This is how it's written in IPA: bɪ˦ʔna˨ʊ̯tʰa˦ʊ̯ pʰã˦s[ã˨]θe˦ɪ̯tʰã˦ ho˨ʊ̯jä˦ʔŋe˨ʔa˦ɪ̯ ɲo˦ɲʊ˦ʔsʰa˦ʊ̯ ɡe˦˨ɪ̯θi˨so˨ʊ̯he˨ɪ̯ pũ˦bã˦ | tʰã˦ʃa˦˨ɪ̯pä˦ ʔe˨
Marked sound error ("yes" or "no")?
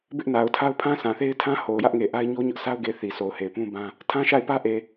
no